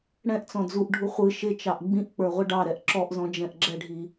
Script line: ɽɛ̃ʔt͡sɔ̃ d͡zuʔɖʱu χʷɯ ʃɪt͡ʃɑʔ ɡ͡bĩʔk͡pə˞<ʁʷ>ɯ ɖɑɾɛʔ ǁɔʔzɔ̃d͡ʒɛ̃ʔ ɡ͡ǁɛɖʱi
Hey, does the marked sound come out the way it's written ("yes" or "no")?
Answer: yes